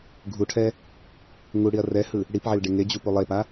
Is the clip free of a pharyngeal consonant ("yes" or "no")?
no